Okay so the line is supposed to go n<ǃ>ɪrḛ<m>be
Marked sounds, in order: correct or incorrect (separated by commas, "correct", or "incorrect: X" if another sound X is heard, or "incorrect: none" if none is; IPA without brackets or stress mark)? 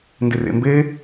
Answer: incorrect: d, correct